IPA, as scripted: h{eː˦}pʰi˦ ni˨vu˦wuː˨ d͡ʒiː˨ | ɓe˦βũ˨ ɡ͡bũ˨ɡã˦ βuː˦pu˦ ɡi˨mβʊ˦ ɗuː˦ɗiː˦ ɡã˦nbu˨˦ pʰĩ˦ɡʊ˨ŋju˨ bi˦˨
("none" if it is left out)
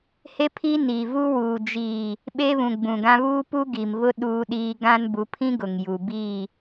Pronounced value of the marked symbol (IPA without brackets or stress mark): e˦